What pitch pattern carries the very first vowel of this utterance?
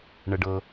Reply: low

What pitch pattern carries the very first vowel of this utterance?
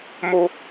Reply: high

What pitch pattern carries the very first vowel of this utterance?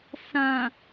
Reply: low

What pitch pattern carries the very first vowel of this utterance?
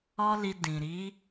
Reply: high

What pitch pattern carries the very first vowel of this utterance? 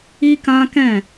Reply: high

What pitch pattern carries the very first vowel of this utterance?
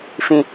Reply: low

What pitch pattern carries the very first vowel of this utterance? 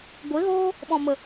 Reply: rising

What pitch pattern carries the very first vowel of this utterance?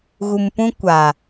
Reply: low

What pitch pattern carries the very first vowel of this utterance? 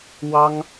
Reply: high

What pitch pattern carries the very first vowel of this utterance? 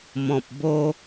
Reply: low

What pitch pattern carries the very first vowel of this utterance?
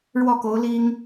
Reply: falling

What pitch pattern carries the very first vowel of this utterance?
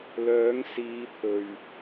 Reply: rising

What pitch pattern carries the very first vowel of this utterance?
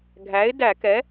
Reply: rising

